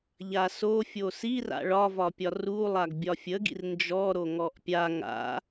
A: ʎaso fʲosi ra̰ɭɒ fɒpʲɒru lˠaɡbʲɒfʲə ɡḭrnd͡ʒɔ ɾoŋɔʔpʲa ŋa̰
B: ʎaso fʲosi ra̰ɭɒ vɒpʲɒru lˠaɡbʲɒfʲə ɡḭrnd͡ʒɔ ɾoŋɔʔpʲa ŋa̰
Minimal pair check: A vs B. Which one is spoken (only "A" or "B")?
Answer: B